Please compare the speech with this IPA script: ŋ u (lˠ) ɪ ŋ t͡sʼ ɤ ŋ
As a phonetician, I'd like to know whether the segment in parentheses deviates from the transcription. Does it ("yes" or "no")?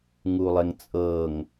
no